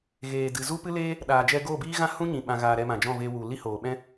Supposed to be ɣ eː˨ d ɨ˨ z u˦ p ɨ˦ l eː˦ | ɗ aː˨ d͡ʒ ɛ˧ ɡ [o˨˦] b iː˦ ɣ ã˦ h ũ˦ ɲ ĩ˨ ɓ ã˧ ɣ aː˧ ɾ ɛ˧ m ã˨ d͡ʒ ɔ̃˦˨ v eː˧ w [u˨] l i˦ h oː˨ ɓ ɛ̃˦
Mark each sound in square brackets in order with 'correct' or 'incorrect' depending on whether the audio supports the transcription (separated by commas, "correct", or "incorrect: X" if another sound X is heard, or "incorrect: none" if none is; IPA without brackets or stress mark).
incorrect: o˦˨, correct